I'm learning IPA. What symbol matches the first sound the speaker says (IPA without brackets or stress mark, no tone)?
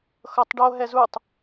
x